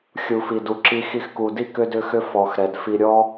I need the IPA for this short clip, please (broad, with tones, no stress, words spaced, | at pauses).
xʲu˨fi˨du˨ǁi˧ xi˧xku˨di˦ kʏ˦dʏ˦xʏ˦ fɔ˨x ɾɛ˨dfi˧ ɾʲɔ˦